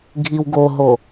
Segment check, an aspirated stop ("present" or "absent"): absent